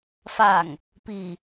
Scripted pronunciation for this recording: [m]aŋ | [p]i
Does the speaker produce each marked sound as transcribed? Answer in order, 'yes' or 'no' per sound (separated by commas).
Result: no, yes